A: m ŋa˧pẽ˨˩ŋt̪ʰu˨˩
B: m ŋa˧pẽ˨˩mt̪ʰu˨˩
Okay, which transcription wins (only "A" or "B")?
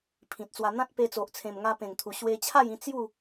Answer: A